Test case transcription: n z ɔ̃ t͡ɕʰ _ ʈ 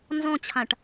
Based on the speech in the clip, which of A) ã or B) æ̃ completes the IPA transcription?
A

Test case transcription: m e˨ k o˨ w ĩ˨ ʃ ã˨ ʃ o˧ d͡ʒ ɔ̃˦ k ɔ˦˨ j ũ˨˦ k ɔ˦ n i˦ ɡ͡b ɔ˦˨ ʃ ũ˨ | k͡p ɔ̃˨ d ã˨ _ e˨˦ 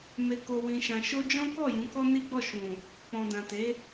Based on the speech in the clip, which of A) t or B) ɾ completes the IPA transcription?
A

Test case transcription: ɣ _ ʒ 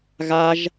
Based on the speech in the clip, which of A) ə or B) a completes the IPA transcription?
B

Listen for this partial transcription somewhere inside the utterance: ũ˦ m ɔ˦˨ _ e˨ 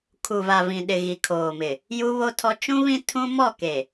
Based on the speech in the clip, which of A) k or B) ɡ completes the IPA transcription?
A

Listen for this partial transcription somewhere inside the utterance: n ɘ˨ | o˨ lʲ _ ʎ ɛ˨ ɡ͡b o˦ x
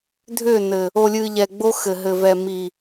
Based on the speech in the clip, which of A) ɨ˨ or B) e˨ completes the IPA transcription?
A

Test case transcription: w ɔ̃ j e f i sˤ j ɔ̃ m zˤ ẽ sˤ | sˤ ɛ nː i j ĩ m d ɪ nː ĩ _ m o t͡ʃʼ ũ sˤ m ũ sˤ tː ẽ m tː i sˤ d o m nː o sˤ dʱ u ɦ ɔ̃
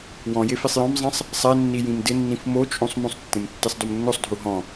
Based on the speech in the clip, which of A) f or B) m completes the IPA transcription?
A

